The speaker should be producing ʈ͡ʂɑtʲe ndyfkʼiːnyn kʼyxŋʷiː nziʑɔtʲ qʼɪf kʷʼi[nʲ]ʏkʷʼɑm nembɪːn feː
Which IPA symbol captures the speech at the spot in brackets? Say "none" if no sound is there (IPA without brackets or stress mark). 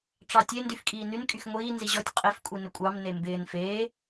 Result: n